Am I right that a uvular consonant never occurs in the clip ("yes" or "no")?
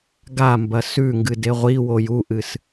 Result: no